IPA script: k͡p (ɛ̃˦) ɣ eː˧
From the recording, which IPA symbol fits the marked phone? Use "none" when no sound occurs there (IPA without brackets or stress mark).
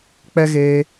ɛ˦